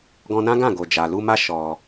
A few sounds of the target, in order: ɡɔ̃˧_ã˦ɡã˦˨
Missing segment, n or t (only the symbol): n